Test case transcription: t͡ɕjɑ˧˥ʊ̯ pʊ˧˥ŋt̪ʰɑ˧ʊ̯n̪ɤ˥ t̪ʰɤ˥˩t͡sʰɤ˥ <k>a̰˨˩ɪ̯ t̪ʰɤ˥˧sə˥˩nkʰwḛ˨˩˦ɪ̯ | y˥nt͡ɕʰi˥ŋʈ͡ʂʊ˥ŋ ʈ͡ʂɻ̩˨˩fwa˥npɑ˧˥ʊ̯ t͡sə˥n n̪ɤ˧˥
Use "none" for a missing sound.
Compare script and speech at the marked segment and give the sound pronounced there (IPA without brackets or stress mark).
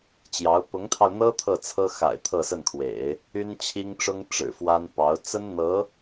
x